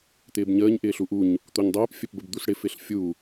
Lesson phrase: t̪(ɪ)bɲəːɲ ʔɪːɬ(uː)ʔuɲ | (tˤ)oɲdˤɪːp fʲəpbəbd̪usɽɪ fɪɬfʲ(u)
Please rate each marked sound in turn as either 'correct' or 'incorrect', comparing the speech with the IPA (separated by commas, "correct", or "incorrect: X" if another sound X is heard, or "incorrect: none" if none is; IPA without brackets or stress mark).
incorrect: ɪː, incorrect: u, incorrect: t̪, correct